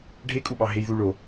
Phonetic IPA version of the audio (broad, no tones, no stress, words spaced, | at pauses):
ɖʱekʼuɓɑɦej ðuɭo